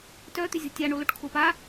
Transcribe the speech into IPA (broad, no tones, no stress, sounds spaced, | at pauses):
t œ t̪ ʏ zʲ ɔ̤ tʲ a ɳ o l o ʈ kʰ ʊ p a